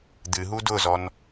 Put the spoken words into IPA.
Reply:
d̪ ɨ ɦ u d ʊ z ɔ n

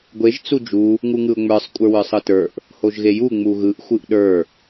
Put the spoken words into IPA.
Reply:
ɡʷ e ʒ t͡s u d͡ʒ u | ŋ u ŋ ɯ ʊ̯ ŋ͡m ə˞ sˤ kʷʼ ə˞ w ə˞ sˤ ɯ t ə˞ ʔ | h o ʒ ɣ e j u ŋ͡m u ɣ ɯ ʔ xʷ ɯ ʔ ɗ ə˞

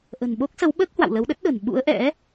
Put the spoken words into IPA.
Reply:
ʔ ə̤˨˩ n ɓ o˦˥ k̚ s ə˨˦ w ɓ əː˦˥ k̚ h w a̰˧˨ w l ə˨˦ w ɗ ə˦˥ t̚ ɗ ə̤˨˩ n ɓ ṵ˧˥ ə̯ ʔ ɛ̰˧˥

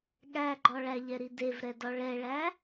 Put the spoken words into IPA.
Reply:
ɠ æ ɡ͡ǃ ɔ ɭ æ ʎ ɛ ɾ i d e v ɾ ɛ d ɔ ɭ ɛ ɭ æ

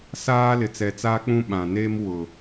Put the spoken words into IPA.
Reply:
s aː˦ l ɪ˨ t͡s ɛ˨ t͡s aː˦ k͡p ũ˦ ɓ ã˨ n eː˦ m w ʊ˨

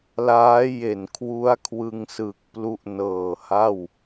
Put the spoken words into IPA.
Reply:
l aː˦˥ j e˨˩ n kʰ w u˦˥ a̯ kʰ w ɯ˧ ŋ s ɯ˨˩ k̚ p l u˦˥ ʔ n ɤː˨˩ h a˥˩ w

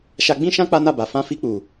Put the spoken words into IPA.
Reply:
ʃ a˧ ɡ͡b ĩ˦ ʃ ã˦ k͡p a˦ n a˦˨ b a˨ f ã˧ f i˧ k͡p u˨

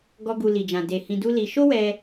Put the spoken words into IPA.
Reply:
ɡ ɔ˦ ɡ u˧ l i˨ d͡ʒ ã˨ d e˨ h ĩ˧ d u˦ l i˧ ʃ o˦ w ɛ˧

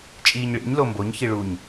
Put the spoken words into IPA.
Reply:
t͡ʃʼ iː ɲ ɭ ḭ ɲ l o m b o ɲ ç i ɭ u ɲ

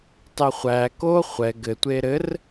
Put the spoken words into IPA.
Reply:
tˤ e χʷ æ k o χʷ ɛ ɡ ɘ tʷ e ɾ ɘ r

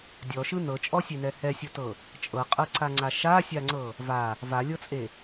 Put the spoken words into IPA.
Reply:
dʲ ɔ ʃ ɯ n ɤ t͡ʃʼ ɔ sʲ e n ɛ h ɛ sʲ ɤ t ɤ | t͡ʃʼ ɤ qʼ ɤ ǀ a ŋ͡ǀ a ʃ a sʲ a ŋ͡ǀ ɤ | v a | v a lʲ ɤ t͡sʼ e

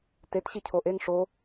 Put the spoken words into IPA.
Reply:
t e t ɕ i cʰ o ʔ e ŋ ʂ o

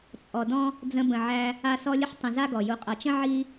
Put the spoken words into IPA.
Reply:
t͡sʼ ɔ˨ d ɔ̃˥ | d͡z ə̃˦ b ə̃˨ ʕ æ˦ | a˦ s ɔ˦ lʲ ə˥ ħ tˤ ə̃˨ z a˦ ɡ ɔ˩ j u˨ qʼ ʌ˨ t͡ʃ ə̃˥ ʕ i˥

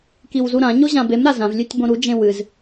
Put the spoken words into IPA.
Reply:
k i w z u ɾ ã ɲ o ʑ ã b e m ɾ a z ã v lʲ ʉ tʲ b õ ɾ u d͡ʒ ẽ w ɨ z

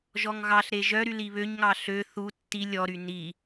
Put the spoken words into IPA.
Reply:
ʒ ɔ ŋ ɣ ɑ ɬ ɾ e ʒ œ ɾ y l i β ø ɲ ŋ ɑ ɬ ø θ u tː i lʲ ɔ ɾ y n i

